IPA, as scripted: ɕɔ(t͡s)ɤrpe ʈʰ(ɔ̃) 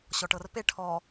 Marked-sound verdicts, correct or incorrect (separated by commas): incorrect, incorrect